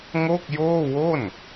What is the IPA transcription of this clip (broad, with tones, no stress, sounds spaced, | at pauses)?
ŋ o˥˩ k̚ j oː˥˩ w o˥˩ n